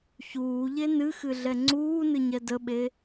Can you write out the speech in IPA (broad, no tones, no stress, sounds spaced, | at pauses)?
ç uː ʎ e n ɨ x ɨ ɮ ɛ ŋ͡ǀ uː n ɨ ɲ ɛ d ə ɓ e